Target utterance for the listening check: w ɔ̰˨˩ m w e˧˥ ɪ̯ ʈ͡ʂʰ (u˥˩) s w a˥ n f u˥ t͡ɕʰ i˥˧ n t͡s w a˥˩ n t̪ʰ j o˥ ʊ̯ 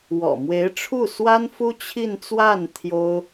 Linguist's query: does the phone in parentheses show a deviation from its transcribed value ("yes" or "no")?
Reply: no